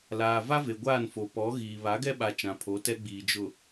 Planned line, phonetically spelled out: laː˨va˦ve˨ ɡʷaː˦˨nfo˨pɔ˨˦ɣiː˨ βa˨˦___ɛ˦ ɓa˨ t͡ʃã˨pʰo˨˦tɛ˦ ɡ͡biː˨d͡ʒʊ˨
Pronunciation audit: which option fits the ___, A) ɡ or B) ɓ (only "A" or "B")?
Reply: A